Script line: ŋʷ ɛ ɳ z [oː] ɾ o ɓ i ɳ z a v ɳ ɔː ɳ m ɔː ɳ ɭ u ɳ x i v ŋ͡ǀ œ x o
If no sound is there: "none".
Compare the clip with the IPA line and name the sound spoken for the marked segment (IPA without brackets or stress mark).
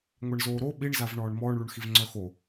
oː